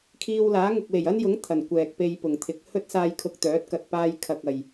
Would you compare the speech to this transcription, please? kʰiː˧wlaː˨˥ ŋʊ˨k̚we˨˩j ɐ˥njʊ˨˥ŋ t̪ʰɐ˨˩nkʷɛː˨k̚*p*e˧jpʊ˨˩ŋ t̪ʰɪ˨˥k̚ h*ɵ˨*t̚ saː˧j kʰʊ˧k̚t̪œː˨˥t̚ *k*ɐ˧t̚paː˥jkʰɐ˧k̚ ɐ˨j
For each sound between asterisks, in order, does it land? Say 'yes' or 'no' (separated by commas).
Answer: yes, no, yes